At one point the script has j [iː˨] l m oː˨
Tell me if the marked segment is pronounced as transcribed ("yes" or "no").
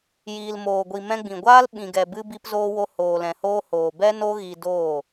yes